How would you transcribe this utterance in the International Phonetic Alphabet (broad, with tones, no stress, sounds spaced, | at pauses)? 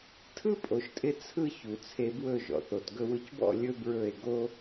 tʰ ɯ˦ pʼ o˨ ʃ tʼ ɪ˧ t͡sʰ ɯ˦ ç u˨ t͡sʰ e˧ b w ɵ˦˨ ʒ ɔ̰˨ θ o˨ t ɡ ɵ˧ w ɯ˧ c b ɔ̰˦˨ lʲ ɵ˦ b ɹ ɵ˦˨ e̯ ɡ o˧